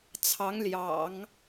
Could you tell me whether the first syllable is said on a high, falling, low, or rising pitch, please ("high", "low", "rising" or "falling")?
rising